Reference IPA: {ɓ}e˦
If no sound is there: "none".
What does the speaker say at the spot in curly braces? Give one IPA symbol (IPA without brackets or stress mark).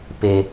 p